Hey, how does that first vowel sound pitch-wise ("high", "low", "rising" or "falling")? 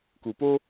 low